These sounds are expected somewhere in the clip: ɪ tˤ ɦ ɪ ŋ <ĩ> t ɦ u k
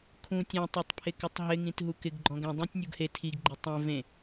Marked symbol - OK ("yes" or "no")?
yes